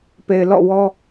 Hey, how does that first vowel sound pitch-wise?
low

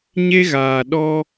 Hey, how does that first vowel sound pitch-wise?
high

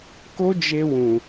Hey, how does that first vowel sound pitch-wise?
high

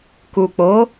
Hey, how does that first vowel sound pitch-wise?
low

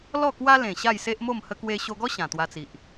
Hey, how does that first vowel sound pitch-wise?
falling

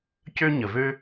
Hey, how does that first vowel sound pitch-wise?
high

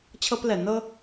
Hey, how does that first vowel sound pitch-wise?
high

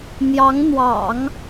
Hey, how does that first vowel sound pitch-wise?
rising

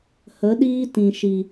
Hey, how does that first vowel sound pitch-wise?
rising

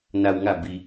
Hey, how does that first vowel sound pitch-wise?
low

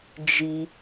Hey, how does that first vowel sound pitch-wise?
high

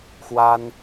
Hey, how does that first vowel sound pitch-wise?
high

